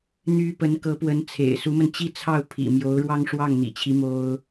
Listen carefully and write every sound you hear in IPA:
n̪ y˥ p ə˧˥ n k ɤ˧˥ p w ə˧˥ n t͡sʰ ḛ˨˩ ɪ̯ s u˧˥ m ə˧ n t͡ɕ i˥˧ t͡sʰ ɑ˥˩ ʊ̯ pʰ ḭ˨˩ m j o˧˥ ʊ̯ ɻ w ɑ˥ ŋ ʂ w ɑ˥˩ ŋ n̪ ḭ˨˩ t͡ɕʰ i˧˥ m o˥ ʊ̯

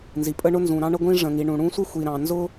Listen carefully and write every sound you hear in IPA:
n z i˩ pʼ ə˥ ɳ ʊ˥ n z ũ˩ ɾ ɑ̃˥ ɳ ə˥ ɡʷ ĩ˥ ʐ ə̃˩ ŋ i˩ ɳ ũ˩ ɽ ũ˥ sʷ ɪ˥ xʷ i˩ ɾ ɑ̃˩ n z ʊ˥

